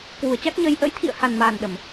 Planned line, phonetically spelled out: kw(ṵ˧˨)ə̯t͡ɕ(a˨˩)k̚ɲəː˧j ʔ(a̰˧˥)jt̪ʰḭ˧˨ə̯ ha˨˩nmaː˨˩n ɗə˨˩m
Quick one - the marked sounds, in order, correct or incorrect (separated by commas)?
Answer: incorrect, incorrect, incorrect